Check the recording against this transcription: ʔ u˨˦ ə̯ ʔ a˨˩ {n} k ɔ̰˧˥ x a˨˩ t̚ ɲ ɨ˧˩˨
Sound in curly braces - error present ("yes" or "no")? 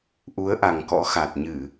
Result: yes